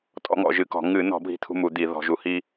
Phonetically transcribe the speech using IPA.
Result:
tʼ ɔ̰˦ ŋ ɔ̰˧˩˧ ʒ ɨ˧˩˧ k ɔ̤˧˩˧ ŋ ɨ˧˩˧ n ɔ̤˧˩˧ bʱ i̤˦ t̪ʰ ṳ˦ m u˧˩˧ d̪ i˧˩˧ ð ɔ̤˧˩˧ ʒ u˧˩˧ h i˦

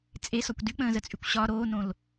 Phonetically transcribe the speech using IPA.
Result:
t͡sʼ e s ɒ kʷ d y k͡p ə̃ː z ə t͡sʼ y kʷ ɕ ɒ ɾ oː n õ l

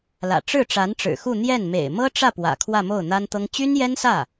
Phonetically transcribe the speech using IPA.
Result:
l ä̰˨˩ ʈ͡ʂ ɻ̩˥˩ ʈ͡ʂ a˧˥ n ʈ͡ʂ ɻ̩˨˩ x u˥˧ n̪ j ɛ˥˩ n m ḛ˨˩ ɪ̯ m ɤ˥ ʈ͡ʂ ä˥˩ p w ä̰˨˩ kʰ w ä˥˧ m o˥˩ ʊ̯ n̪ a˥ n t̪ ɤ˥ ŋ t͡ɕ y˥ n j ɛ˥ n s ä˥˩

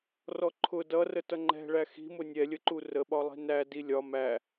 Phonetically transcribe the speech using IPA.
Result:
r ɔ ǃʰ ʊ d ʌ r ə t ʌ ŋ͡ǃ ɛ̤ ɭ æ x i̤ m ʊ nʲ ɛ lʲ ə ǃ u r ə ɓ ɒ lˠ i̤ n æ d i lʲ ɒ m æ

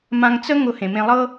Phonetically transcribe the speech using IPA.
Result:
m ã˧ ŋ t͡s ə˥ ŋ ʊ˧ h ẽ˩ m ẽ˧ lˠ ɤ˥

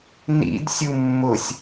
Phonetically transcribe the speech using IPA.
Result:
n ḭ d sʲ u mː ʊ sʲ

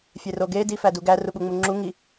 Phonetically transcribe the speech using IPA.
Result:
fʲ e r o ɡ e d i f æ d u ɡ æ r u ɓ u ŋ͡m u ŋ͡ǁ u ŋ i

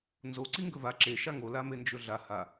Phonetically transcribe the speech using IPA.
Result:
n z o ǀ i ŋ ɡ ɵ v a ǁ e ʃ a ŋ o l a m e n d͡ʒ ɵ ɮ a h a

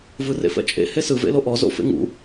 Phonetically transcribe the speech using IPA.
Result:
v ɯ r ḛ f ɛ̰ t͡ʃʼ ḛ h e s ɯ v ḛ l o ʔ ɔ z o̰ f ḛ ŋ ṵ

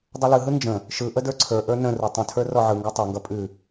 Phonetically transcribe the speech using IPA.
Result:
dˤ ʌ l ɯ ɦ ɯ n d͡ʒ ə̃ | ʃ ɯ ʔ ə d ə˞ ǀʰ ə˞ ʔ ə˞ n ə̃ r u tˤ ə̃ tʰ ə˞ r ɔ ʕ ɯ ŋ ɡ ɔ tˤ ə˞ ŋ ɡ ʌ pʼ ʉ

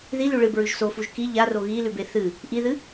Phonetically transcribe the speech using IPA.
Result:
ð i l ʉ ɭ ɨ b ɹ ʉ ʒ s o f u ʒ k i ʎ a r o ɣ i l ʉ b e θ ɨ | ʔ i ð ɨ

